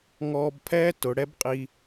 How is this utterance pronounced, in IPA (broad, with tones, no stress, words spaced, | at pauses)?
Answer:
ŋɔː˧bpʰɛː˦ tʊ˨˦ ɽɛ˦bqʼi˧